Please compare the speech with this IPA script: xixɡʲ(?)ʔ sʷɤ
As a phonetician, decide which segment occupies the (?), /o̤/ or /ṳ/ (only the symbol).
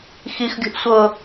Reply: o̤